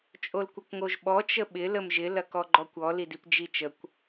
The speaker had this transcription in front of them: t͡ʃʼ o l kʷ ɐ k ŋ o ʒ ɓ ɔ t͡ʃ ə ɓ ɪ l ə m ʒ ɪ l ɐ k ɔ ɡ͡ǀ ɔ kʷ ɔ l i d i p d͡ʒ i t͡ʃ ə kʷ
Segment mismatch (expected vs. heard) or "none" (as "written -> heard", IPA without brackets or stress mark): ɡ͡ǀ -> ɡ͡ǃ